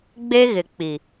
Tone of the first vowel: high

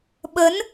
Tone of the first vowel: rising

